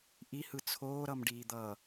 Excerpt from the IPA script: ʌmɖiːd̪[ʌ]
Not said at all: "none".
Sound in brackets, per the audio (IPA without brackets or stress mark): ʌː